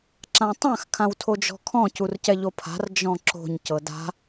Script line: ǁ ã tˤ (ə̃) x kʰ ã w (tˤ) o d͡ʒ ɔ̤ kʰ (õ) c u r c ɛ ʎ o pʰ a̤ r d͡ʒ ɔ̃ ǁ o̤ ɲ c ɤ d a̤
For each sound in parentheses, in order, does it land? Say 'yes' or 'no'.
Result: no, no, no

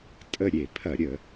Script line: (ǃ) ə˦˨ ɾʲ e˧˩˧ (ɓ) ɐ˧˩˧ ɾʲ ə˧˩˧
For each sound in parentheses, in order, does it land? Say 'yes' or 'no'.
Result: no, no

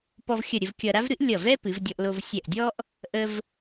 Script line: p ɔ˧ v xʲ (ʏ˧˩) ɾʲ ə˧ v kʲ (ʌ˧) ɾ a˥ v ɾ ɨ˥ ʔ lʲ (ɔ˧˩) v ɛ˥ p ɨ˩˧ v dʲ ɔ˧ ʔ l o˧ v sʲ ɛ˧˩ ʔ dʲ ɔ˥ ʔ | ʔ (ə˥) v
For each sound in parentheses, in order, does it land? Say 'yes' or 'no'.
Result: no, yes, no, no

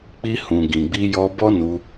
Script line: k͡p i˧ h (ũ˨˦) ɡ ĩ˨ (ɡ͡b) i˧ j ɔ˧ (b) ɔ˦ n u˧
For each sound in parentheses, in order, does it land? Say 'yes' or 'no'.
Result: no, yes, yes

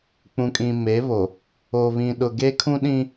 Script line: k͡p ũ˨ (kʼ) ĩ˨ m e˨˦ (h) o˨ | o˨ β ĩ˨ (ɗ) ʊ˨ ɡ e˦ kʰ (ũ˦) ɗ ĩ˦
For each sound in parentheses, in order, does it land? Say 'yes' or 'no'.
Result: yes, no, yes, yes

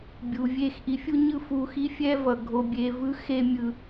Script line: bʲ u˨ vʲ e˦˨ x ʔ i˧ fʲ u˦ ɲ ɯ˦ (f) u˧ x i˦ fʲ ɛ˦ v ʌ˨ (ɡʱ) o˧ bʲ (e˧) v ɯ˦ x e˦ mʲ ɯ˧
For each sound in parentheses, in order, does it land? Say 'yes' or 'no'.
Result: yes, yes, yes

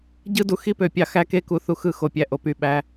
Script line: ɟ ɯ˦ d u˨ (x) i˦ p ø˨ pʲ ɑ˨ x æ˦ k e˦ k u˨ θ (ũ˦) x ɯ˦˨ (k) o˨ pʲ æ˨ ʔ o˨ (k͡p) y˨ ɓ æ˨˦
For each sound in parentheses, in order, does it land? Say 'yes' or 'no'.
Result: yes, no, no, no

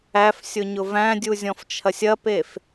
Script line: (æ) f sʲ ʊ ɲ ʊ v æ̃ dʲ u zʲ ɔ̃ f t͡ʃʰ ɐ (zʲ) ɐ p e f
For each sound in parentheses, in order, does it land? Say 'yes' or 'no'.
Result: yes, no

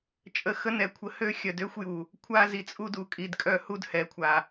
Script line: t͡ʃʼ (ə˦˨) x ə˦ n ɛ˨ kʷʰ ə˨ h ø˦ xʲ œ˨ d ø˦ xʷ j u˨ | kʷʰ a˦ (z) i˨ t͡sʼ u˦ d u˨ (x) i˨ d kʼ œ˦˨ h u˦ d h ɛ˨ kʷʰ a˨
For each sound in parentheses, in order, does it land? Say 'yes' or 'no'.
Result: no, yes, no

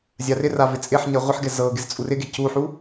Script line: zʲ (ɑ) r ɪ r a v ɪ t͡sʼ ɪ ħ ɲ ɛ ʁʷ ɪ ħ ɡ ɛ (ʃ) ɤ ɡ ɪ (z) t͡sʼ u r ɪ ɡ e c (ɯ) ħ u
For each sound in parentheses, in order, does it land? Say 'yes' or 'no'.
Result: no, no, yes, no

